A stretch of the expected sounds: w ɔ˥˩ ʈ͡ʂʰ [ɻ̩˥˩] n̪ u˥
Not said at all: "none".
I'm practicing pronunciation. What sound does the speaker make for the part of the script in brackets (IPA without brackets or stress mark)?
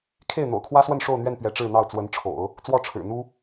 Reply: ɻ̩˨˩